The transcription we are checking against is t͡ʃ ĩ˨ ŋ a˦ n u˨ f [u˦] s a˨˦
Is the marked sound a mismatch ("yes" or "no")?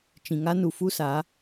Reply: no